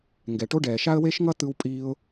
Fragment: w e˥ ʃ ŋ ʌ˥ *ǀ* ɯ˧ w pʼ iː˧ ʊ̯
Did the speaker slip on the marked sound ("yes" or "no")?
yes